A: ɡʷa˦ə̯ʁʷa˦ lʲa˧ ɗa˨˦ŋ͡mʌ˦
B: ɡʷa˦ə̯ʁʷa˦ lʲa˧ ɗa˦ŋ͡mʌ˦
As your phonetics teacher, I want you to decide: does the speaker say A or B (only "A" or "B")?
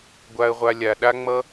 B